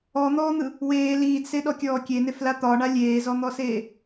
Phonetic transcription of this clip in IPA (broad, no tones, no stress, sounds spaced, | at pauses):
ɔ n̪ ɔː n̪ ɯ | w eː l iː d s e ɗ ɔ kʲ ɔː kʲ e n e f l a t̪ ɒ ɳ a lʲ eː z ɔ n̪ ɔ s eː